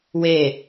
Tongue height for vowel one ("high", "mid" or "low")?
mid